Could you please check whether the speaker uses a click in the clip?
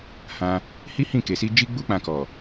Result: no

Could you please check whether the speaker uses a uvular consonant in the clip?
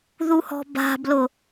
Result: no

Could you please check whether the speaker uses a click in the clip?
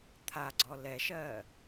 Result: yes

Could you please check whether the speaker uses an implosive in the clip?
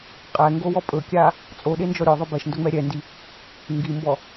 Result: yes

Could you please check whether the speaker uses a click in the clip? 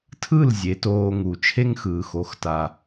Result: no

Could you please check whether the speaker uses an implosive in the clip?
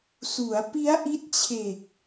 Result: no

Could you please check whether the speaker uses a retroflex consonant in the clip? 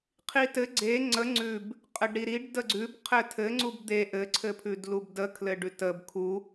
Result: yes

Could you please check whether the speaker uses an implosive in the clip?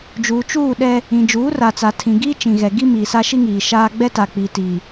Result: yes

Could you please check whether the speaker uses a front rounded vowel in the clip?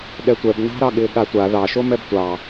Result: no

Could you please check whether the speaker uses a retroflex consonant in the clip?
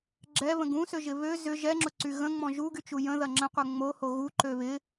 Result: no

